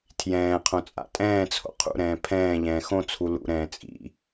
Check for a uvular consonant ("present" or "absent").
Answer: present